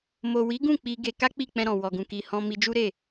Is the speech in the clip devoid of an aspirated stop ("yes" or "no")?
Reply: yes